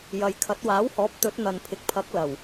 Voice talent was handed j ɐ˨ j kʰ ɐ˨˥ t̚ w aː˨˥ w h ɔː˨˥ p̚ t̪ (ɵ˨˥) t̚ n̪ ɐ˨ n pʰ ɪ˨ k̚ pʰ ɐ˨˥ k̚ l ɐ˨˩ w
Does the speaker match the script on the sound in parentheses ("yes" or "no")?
yes